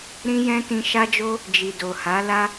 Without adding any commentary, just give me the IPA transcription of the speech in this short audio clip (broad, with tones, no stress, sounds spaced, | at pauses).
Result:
ɾ ĩ˦ j ɛ̃˦ t ĩ˧ ʃ a˦ d͡ʒ o˦ | d͡ʒ i˨ d o˨ h a˨˦ l a˦